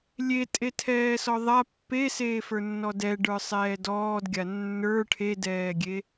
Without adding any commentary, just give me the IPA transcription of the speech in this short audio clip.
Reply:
lʲetʼetʰɛːsɔ ðˤa pːeseːfə˞nːɔ dɛɖə˞sˤɛː dɔːdɡʲa nːə˞ ʈʰedɛːɡʲe

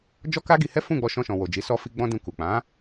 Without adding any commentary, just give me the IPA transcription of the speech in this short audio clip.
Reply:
d͡ʒɔ˦ka˦ɡi˧hɛ˦ fũ˦˨ɡ͡bɔ˧ʃɔ̃˧ʃɔ̃˨ wo˨d͡ʒi˨˦ sɔ˧fi˧ ɡ͡bɔ̃˦dũ˧ku˨ k͡pã˨˦

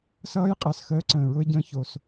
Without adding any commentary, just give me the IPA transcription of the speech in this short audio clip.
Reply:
sʌː˦j qʼɜ˨˩s xəː˦ǀə̃ː˨˩ ɹʊ˦ɪ̯ɟə̃ː˦ço˨˩s

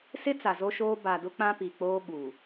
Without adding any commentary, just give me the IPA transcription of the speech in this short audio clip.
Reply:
sɪ˦ t͡sa˨zo˦ʃoː˦ ba˨dʊ˦ k͡pã˦pi˨k͡poː˦ ɓu˨

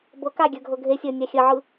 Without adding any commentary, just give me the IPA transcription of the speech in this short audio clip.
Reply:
bɤ kaɡʲə˞ɡʱɤ ɡʱesʲə˞nʲa xʲəʕɯ

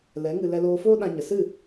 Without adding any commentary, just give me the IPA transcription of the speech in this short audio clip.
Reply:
lɛ˨˦ŋɨ˧ lɛ˧loː˧foː˦ ɗã˧ɲə˨ sɨ˦˨

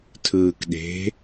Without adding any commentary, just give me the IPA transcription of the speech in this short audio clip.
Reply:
tʰɯːkɗe̤

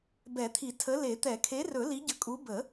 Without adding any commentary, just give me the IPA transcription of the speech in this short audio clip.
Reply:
bɛ˨˩˦t̪ʰi˨˩˦tʰə˨˥ le˨˩˦t̪ɛ˨˩˦kʰe˨˥rɵ˨˩˦ li˨˥ɟə˨˥kʼu˨˥ bə˨˩˦

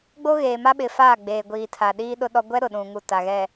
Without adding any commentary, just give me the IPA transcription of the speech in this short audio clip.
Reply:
ɡ͡bo˦ɣeː˨ma˦ɓɪ˨ faː˦˨ɡ͡beː˨ɡʷiː˨ tʰa˨ɗiː˦ɗʊ˦ ɗɔ˦ ɡʷɛ˦ɾʊ˨ɗũ˨ŋu˨ ta˨ɣɛ˨

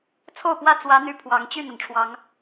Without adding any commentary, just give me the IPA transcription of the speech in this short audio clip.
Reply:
t͡sʰo˥˨ʊ̯pwä˦ t͡swä˨˦n̪y˨˩ pʰwɑ˨˦ŋt͡ɕy˥˨n̪ə˩nʈ͡ʂʰwɑ˨˦ŋ

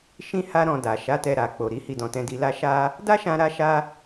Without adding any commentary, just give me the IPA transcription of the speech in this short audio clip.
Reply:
ʃĩ˦ ha˦ɾɔ̃˧ da˨ ʃa˨˦ tɛ˧ɾa˨k͡po˨ ɾi˨˦hi˦˨dɔ̃˧tɛ̃˦ di˧la˦ ʃa˦ | da˦ʃã˧ɾa˧ʃa˧

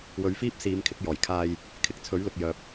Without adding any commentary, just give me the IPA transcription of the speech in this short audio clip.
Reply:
wɵ˨˧ɥfiː˥p̚siː˨˧mkʰɪ˨˥k̚ jɔː˨˩jkʰaː˧j | kʰɪ˨˥k̚ t͡sʰɵ˨˥ɥlʊ˨k̚jœː˨p̚

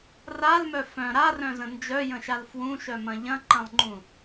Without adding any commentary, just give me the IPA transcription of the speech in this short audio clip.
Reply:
ralmœ fœ̃ ɾarœ̃zə̃ nd͡ʒœjə̃ʃal fwũʃœmɐ̃ ʎɐ̃ǃɐ̃lˠŋ͡ǃũ

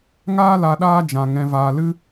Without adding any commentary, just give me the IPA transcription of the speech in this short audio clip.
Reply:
ŋaː˦la˧ɗaː˦ d͡ʒã˧ ŋɛ̃˧vaː˧lɨ˦

